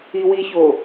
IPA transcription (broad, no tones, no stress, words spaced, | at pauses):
iwiço